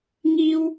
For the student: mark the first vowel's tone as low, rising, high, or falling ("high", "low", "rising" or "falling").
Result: high